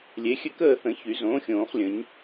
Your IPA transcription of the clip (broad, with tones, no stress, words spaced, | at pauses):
lʲe˩˥xʲɘ˥˨kəː˥˨θə̃˨˩˦ çy˨˩˦zõː˩˥xʲõː˨˩˦χlʲə̃˨˩˦ɲ